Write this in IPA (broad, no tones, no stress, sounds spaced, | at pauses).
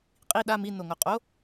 qʼ i ɗ a m i n o ŋ o qʼ o